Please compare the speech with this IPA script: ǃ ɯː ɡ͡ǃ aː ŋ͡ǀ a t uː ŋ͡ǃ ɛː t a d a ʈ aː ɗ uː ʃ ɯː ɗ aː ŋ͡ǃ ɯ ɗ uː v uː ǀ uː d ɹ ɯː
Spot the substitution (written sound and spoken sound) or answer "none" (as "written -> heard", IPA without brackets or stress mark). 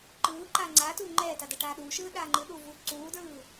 ɡ͡ǃ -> ǃ